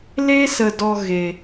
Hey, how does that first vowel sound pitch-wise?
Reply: high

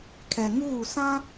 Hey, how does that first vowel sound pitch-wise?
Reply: low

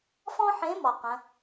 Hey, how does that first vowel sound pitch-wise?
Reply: high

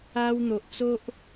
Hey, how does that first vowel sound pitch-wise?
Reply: high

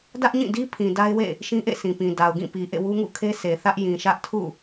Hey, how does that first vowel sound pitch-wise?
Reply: high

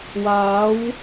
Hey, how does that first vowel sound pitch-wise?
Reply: rising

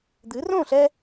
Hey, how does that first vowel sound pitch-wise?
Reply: rising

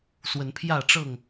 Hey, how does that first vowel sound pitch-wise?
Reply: rising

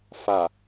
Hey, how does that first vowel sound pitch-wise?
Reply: low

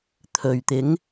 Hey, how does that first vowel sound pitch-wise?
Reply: low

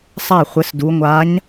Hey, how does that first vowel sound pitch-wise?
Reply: falling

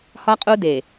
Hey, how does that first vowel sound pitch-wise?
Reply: high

